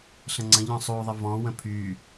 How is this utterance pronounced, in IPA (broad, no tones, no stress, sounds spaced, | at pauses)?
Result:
ɬ ə̃ ŋ͡ǀ ə̃ ʎ ɔ̃ sˤ u ðˤ ə v ɔ̃ w ə̃ pʰ y